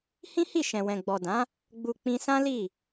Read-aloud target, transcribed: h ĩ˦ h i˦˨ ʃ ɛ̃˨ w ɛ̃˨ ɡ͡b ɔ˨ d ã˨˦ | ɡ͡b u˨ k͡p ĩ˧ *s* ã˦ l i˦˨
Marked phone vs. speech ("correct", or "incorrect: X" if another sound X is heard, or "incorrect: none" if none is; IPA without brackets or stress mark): correct